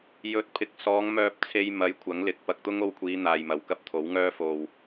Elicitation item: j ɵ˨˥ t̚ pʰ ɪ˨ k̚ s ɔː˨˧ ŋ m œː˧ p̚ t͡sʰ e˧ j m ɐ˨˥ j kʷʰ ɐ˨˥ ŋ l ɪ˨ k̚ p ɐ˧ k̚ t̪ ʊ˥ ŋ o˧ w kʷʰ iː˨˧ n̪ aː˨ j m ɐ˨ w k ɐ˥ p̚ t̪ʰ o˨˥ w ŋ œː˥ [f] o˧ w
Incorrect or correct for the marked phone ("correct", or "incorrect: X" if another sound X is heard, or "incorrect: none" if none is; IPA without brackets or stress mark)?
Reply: correct